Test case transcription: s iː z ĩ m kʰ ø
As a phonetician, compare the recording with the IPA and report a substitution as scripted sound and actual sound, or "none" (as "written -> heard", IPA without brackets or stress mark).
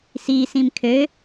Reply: z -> s